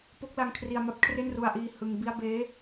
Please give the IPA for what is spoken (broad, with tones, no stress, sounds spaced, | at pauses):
p o˦˥ k̚ l a˧ ŋ kʰ r i˧ a̯ m a˦˥ p̚ kʰ r e˥˩ n r u˧ a̯ ʔ iː˧ h ɯ˧ ŋ b i˥˩ a̯ b eː˦˥